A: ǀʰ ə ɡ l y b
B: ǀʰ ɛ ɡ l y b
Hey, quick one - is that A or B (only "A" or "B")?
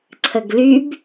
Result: A